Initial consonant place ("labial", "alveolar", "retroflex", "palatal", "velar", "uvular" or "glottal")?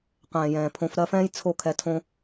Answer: uvular